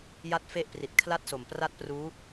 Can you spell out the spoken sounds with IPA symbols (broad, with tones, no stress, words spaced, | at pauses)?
ja˥˩t̚fe˥˩ʔpri˨˩t̚ kʰla˥˩t̚so˨˩mpra˥˩t̚pruː˦˥